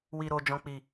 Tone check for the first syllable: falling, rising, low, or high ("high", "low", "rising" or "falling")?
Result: low